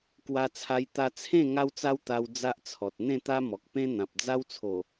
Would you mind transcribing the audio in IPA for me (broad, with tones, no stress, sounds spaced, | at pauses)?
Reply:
k w a˧ t͡sʰ a˧ j t̪ a˧ t͡sʰ ẽ˥˧ ŋ a˦ w t͡s a˦ w t̪ a˧ w d͡z a˦ ʔ t͡sʰ ɔ˨ t̚ n̪ ẽ˥˧ t̪ a˦ m ɔ˨ k̚ p ẽ˦ n̪ ã˨ p̚ d͡z a˦ w t͡sʰ o˨˩